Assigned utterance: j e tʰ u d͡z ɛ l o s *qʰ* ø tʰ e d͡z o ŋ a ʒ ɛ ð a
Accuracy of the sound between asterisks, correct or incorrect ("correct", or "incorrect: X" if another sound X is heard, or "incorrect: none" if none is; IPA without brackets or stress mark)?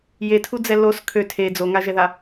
incorrect: kʰ